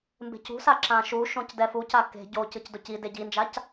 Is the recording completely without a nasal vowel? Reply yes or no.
no